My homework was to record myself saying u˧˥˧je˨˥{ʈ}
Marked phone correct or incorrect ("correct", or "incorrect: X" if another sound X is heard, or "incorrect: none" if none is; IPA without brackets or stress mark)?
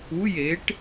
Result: correct